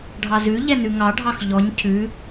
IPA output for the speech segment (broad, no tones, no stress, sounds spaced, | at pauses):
ɖʱ ɑ z ʉ ʎ ɛ n ʉ ŋ ɑ ɖʱ ɑ x ʎ ɔ ɲ cʰ ʉ